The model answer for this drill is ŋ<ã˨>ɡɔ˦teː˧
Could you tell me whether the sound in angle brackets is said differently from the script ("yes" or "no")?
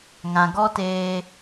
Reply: no